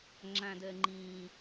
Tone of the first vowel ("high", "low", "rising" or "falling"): high